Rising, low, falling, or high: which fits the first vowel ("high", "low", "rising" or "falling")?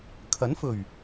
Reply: rising